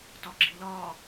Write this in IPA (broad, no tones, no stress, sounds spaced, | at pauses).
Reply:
t ɒ ɡ͡ǁ i l ɒː